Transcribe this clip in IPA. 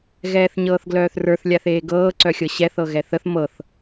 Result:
ɣ ɛː θ ɲ ɤː θ ɡ l œː θ r ə˞ θ lʲ a θ eː ɡ ɤː ǀ œ xʲ ɤ ɕ ɛ θ ɤ ɣ ɛ θ ə θ m ɤ θ

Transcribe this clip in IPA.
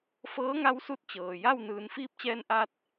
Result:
f ɤː˧˥ ŋ a˧˥ w s u˧ t̚ t͡ɕ ɤː˩ j a˥˨ w n ɯː˩˧ n f iː˧˥ p̚ t͡ɕ ɛː˧ n ʔ a˧ t̚

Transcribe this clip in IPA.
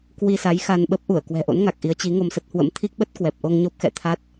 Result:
k w i˧ s a˨˦ j x a˧ n ɓ ə˦˥ p̚ ʔ u˧˩ ə̯ k w ɛ̤˨˩ ʔ o̰˧˥ n ŋ a˨˩ k̚ ʔ i˨˦ ə̯ t͡ɕ i˨˦ ŋ o˧ m s ə˦˥ t̚ h w ə̰˧˥ m t̪ʰ i˦˥ k̚ ɓ ə˦˥ t̚ k w ɛ˨˩ p̚ ʔ o˧ ŋ ɲ o˦˥ p̚ x ɛ̰˧˨ t̪ʰ a˦˥ t̚

